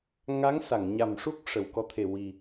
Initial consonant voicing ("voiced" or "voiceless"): voiced